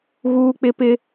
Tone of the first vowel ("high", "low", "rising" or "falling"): high